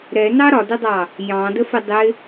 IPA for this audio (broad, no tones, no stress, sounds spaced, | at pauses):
ɾ ɛ n ɑ ɾ ɒ d ɪ dˤ ɑ | j ɑ̃ d ə f ɪ dˤ ɪ